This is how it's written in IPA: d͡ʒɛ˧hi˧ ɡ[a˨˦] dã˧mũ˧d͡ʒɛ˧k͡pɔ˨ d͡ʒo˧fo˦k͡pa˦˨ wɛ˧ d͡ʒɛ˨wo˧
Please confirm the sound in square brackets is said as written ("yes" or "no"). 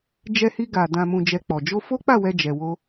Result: no